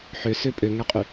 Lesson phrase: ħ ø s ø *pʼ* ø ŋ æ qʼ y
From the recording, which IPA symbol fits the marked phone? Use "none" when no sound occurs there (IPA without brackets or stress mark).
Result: pʼ